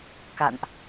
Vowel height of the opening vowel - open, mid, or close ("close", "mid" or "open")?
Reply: open